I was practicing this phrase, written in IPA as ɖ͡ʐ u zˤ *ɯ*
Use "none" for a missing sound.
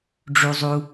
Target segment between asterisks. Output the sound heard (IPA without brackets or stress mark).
u